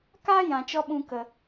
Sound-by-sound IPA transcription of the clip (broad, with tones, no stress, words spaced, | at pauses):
ka˦ jã˨t͡ʃɔ˦ɓũ˧ kə˨